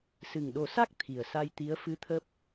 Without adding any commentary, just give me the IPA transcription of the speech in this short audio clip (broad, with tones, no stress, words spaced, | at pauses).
sɨ˨˩ŋɗo˨˩˦sa˦˥k̚ t̪ʰi˨˩ə̯sa˧jt̪i˧˥ə̯ fɨ˧˥t̪ʰəː˦˥p̚